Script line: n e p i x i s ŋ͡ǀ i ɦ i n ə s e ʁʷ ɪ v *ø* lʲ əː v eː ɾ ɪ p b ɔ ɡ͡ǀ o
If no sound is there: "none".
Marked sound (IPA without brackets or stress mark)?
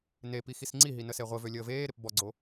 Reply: ø